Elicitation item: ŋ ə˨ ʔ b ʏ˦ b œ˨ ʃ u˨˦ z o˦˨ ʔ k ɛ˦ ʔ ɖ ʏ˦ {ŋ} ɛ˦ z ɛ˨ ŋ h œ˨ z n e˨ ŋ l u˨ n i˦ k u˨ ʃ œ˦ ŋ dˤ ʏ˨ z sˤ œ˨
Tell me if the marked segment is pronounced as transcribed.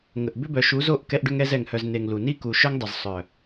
yes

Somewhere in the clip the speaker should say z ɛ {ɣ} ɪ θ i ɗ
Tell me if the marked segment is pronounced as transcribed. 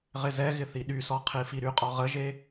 yes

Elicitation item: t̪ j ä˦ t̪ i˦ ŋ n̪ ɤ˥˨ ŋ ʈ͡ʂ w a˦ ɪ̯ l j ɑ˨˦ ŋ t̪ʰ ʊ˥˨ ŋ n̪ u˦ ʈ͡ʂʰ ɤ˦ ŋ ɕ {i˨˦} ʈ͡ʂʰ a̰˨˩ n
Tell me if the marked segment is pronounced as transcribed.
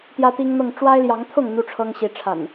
yes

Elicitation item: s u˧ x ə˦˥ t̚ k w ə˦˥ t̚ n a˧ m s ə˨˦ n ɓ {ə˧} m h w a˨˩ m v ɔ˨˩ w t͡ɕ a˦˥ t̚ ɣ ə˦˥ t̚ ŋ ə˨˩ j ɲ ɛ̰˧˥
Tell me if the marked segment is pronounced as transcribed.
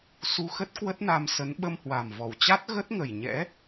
yes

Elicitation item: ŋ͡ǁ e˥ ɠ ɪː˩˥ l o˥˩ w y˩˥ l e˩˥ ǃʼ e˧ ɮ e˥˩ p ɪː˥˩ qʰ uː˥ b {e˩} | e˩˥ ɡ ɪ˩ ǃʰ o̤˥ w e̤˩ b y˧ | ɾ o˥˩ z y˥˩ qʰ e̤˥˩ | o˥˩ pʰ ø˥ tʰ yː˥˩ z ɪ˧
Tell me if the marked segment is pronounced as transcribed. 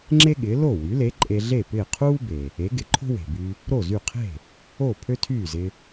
yes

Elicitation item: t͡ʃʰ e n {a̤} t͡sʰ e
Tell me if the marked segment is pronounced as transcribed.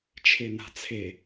yes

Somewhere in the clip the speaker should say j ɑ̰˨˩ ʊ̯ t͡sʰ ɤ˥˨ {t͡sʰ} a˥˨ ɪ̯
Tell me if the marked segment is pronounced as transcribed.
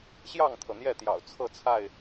yes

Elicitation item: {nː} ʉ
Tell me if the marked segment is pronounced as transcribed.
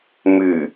no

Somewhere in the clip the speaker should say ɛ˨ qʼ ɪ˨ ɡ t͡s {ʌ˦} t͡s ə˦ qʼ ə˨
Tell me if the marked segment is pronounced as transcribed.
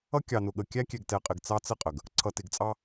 no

